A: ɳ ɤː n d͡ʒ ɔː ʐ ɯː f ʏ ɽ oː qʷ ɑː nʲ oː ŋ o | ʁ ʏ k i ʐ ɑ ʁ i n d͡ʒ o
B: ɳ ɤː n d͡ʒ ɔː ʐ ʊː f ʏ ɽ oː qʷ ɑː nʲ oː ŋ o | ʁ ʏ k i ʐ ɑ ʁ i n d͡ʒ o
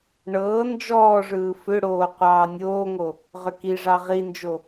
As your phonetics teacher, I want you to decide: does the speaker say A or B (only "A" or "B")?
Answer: A